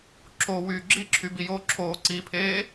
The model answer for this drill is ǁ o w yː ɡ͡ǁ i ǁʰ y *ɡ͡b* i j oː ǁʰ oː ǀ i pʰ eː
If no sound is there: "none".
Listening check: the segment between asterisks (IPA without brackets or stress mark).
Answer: b